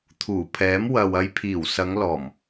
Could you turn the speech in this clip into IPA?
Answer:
t̪ʰ uː˨˩ pʰ ɛː˨˥ m w ɐ˨ w ɐ˧ j pʰ iː˨˩ w s ɐ˨˧ ŋ l ɔː˨˩ m

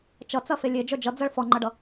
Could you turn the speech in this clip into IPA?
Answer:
t͡ʃ ʌ t͡s ɐ f e lʲ e d͡ʒ œ d͡ʒ ʌ d͡z ɐ ɭ f ɔ ŋ͡ǃ ʌ ɖ ʌ

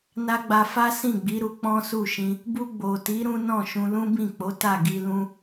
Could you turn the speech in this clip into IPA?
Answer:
n a˦ ɡ͡b a˧ f a˦ s ĩ˦˨ ɡ͡b i˨˦ ɾ u˧ k͡p ɔ̃˦ s u˦˨ ʃ ĩ˧ | b u˧ ɡ͡b o˨ t i˨˦ ɾ ũ˦ n ɔ̃˦˨ ʃ ũ˧ l ũ˦ b ĩ˦˨ k͡p o˨˦ t a˦˨ ɡ i˧ l ũ˦

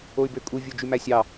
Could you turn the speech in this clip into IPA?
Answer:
o y̯ b ø kʼ u vʲ o d͡ʒ y m æ sʲ ɑ

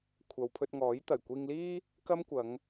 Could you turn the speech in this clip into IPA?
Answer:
kʷʰ ɐ˨ w pʰ ɵ˧ t̚ ŋ ɔː˨˥ j t̪ ɐ˨˩ j kʷ iː˧ ŋ l iː˥ | k ɐ˥ m kʷ ɐ˨˧ ŋ

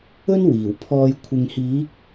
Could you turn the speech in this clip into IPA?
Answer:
ɵ˥ n w iː˨˩ w pʰ ɔː˧ j kʷʰ ɪ˨ ŋ h iː˨˥ k̚

